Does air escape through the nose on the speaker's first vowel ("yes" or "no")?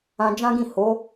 yes